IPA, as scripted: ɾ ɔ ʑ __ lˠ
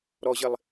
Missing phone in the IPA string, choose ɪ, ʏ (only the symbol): ɪ